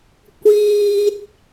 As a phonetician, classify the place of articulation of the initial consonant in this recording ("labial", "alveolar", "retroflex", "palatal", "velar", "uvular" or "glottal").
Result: velar